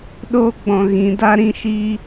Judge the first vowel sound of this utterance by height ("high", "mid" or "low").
mid